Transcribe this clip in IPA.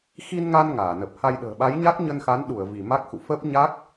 xi˧nŋa˧n ŋaː˧˩nə˨˩p̚ ha˧jɗə̤ː˨˩ ɓa˨˦jɲa˦˥k̚ɲə˧nxa˨˦n ɗu˧˩ə̯ vi˧˩ma˦˥k̚xṵ˧˨ fə˦˥p̚ɲa˦˥k̚

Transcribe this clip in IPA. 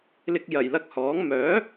lɪ˨k̚jɐ˨˩jlɐ˨˥k̚ hɔː˨˥ŋ mœː˨˥

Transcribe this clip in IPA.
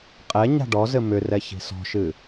qʼɛ ɲa̤ɖɔzɘ mʏrɛ çi̤sɔ̤ʃɨ

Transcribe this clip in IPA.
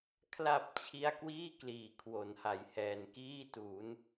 kʰla˨˩p̚ t͡ɕʰi˥˩a̯ kwiː˥˩ kliː˨˩kʰwo˩˦nha˨˩jhɛː˨˩n kiː˥˩tu˩˦n

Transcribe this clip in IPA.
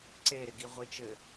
ǀe ɾɪɡiʁʷit͡ʃɘ

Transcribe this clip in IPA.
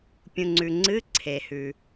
pʲũ˨ŋ͡ǀʉ˨ŋ͡ǀɨ˧˥˧ ǀʰe˨hʉ˨

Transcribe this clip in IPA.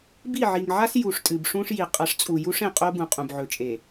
bi˦˨ʕi˨ŋʕa˦s ju˨ʂtʼɨ˨bʂũ˦ʂji˨ qʼɐ˨˦ʂt͡sʼu˨ ju˦ʂẽ˨qʼo˦ bũ˨qʼũ˨bʕɵ˨t͡ʃʼe˨

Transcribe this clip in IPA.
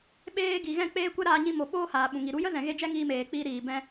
ɓeː˧ ɡi˨ɣɛ̃˦˨k͡peː˦kʷɛ˦ ɾaː˧ɲĩ˧mo˨ ɓoː˦haː˨ɓũ˨ŋi˨ ɾu˨˦jə˦zɛ̃˨ɣe˧ d͡ʒɛ˦ŋiː˧meː˨k͡piː˧ ɾiː˨ bɛ̃˧

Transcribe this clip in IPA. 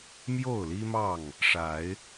mjo˥˨ʊ̯li˦mɑ˥˨ŋ | ʂa˨˦ɪ̯

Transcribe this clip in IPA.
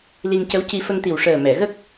li˧ŋcə˧˥wci˧ fə˧ŋt̪i˨˩wʂəː˨˩ mɛ˨˩˨ɣə˦˥k̚

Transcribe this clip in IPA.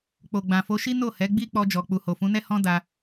k͡po˨ɡ͡bã˨fo˨˦ʃi˦ no˦˨ hɛ˨˦ ɡ͡bi˦k͡pɔ˧d͡ʒɔ˨ k͡pu˨ho˨fũ˨˦nɛ˦ hɔ̃˦ da˧

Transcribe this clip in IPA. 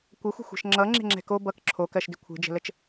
kʷəxʷə̤xʷɛ̤ʃ ŋ͡ǁʌ ŋ͡ǁe̤ŋ͡ǁɛ̤ko bʌk ǁʰokɜʃdɪ kʷʰe̤d͡ʒə̤lət͡ʃ

